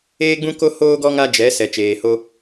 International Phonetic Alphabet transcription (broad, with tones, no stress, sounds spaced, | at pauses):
eː˦ ɡ͡b ũ˦ k o˦ h oː˦ ɡ ɔ˦ ŋ a˦ d͡ʒ ɛ˨˦ s ɛ˨ t͡ʃ eː˨ h o˦